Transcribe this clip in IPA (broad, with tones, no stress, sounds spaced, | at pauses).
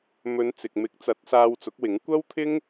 m ɵ˨˧ n t͡s ɪ˨ k̚ m ɪ˨˥ k̚ t͡s ɐ˨˥ t̚ s aː˧ w t͡s ʊ˨˥ k̚ w ɪ˨˥ ŋ kʷ ɐ˥ w t̪ʰ ɪ˥ ŋ